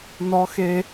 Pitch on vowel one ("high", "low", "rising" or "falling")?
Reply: high